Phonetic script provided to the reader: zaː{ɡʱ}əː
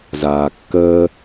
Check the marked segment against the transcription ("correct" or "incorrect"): incorrect